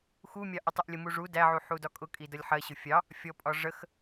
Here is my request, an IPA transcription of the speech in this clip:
x u mʲ ɑ ʔ ʊ tˤ ɪ ʔ lʲ ə m u ʐ u d æ ʕ u ħ u d ɒ kʼ ʊ kʼ i d ʌ lʲ ħ ɜ ɕ ʊ fʲ ɑ | fʲ ɔ pʼ ɒ ʐ ə x

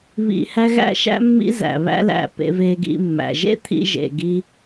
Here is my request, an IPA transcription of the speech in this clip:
β ḭ˧ h æ˦ ɣ æ̰˦ ʃ æ̰˦ mː ḭ˦ z æ̰˨ β æ̰˦ l æ̰˧ p ḛ˧ v e˧ ɡ ḭ˧ mː æ̰˨ ʒ ḛ˦ t̪ʰ ḭ˧ ʒ ḛ˨ ɡ i˧

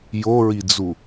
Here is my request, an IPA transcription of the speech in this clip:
j o ɹ i d͡z u

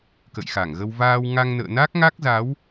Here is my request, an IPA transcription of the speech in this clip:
k ə̰˧˨ j x a˧˩ ŋ ɣ ə˧ w v aː˧ w ŋ a˧ ŋ n ə̰ː˧˨ n a˦˥ k̚ ŋ a˦˥ k̚ z a˨˦ w

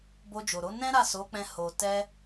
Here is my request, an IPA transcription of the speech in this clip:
b o˧ d͡ʒ o˨ ɾ o˨˦ n ɛ̃˦ ɾ a˦˨ s o˨˦ k͡p ɛ̃˧ h o˨ t ɛ˧

